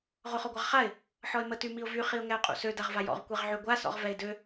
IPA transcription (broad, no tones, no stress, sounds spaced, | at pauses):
ʁ o χ ɔ ɡʷ a ʁ χ a ɪ̯ | ħ ɔ ɪ̯ m ə t y m i ʊ̯ v y χ i ʊ̯ ŋ ɛ ʊ̯ qʼ ṵ s ø d a ʁ v a j ɔ̰ ʁ kʷ ɛ ʁ ʕ y ɡʷ a s ɔ̰ ʁ v ɛ ɪ̯ d ø